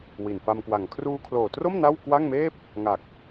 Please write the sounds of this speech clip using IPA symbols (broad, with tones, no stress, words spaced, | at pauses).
wi˨˩nfa˧mkwa˨˩ŋ kʰruː˧kʰloː˨˩tro˥˩m na˥˩wkwa˥˩ŋmeː˥˩p̚ | ŋa˨˩k̚